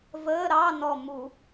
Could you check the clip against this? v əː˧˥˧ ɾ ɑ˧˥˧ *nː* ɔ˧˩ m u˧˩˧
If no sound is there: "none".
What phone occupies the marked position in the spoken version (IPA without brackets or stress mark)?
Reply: n